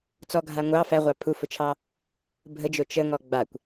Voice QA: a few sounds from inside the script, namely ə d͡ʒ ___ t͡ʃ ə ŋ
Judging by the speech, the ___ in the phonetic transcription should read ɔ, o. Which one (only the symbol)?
o